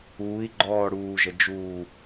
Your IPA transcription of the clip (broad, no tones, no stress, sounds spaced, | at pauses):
uː i̯ ɡ͡ǃ ɔː ɽ uː ʒ ə d͡ʒ uː